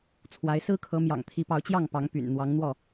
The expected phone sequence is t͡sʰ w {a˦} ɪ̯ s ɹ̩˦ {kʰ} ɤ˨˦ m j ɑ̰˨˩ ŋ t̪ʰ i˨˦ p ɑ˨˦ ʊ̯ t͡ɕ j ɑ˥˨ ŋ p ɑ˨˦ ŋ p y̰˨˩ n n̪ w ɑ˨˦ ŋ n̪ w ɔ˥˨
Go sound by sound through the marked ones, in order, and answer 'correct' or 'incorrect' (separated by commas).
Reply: incorrect, correct